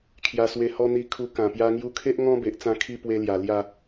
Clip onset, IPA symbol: kʰ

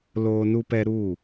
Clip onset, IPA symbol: l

